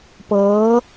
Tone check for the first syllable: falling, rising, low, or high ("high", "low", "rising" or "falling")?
rising